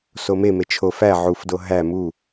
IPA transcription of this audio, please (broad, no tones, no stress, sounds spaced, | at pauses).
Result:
s o m e m e t͡ʃʰ o f æ ʕ u f d o ɦ æ m u